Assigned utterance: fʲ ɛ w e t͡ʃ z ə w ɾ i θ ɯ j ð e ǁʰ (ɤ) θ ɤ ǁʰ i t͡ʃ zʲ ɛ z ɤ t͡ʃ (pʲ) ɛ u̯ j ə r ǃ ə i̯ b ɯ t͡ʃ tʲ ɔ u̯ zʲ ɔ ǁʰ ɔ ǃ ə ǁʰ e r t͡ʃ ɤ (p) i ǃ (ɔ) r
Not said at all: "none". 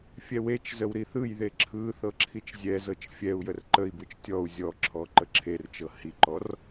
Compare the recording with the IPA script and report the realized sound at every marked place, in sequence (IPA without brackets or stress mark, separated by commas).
ɯ, fʲ, h, ɔ